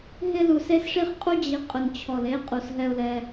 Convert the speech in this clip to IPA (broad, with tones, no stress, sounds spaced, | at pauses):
ɦ ɪ˧ l u˨ s e˦ s ʂ i˦ χ qʼ u˦ d͡ʑ i˨˦ qʼ ʊ˨ n t͡ɕʰ ɔ˨ l e˧ qʼ u˨ s ɦ ɛ˧ ʊ̯ l ɛ˧